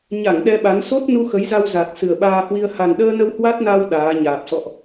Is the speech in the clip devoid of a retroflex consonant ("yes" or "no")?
yes